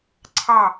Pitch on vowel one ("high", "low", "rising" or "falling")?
falling